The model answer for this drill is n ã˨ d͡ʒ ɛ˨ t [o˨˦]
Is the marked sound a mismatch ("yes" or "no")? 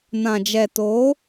no